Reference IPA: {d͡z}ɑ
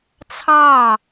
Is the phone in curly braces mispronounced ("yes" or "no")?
yes